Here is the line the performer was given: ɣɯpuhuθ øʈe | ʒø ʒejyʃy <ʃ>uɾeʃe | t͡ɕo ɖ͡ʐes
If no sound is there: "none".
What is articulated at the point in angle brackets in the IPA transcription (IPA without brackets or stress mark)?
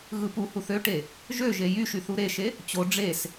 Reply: θ